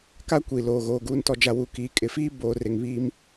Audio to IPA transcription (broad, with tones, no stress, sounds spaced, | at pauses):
k a˦ kʷ iː˨ l oː˨ ɣ oː˨ ɡ uː˨ n t ɔ˨ d͡ʒ a˨ w u˨ k iː˨ kʼ ɪ˨ f iː˦ b oː˨ r ɪ˨ ŋ β iː˦ m